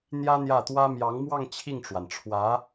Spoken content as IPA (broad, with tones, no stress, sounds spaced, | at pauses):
n̪ j ä˥ n̪ j ä˥˩ t̪ w ä˥ m j ɑ˧˥ ŋ m w ɑ˥˧ ŋ t͡ɕʰ i˥˩ ŋ ʈ͡ʂ w a˩ n ʈ͡ʂʰ w ä˧˥